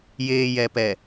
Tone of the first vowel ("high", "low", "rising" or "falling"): low